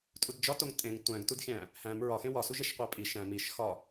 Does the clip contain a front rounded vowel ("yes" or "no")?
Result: no